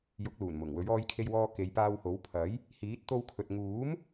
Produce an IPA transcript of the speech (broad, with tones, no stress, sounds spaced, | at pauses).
j ʊ˨˥ k̚ l uː˨˩ n m ʊ˨˩ ŋ w ɵ˨˥ ɥ ɔː˧ j kʰ e˧ j w ɔː˧ k e˨˧ j p aː˧ w h o˨˥ w pʰ ɐ˨˥ j | h iː˨˥ t̚ t̪ o˧ w kʰ ɵ˨ t̚ ŋ uː˨˥ m